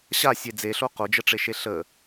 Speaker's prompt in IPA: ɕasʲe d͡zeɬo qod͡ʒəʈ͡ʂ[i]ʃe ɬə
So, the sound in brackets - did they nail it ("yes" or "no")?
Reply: no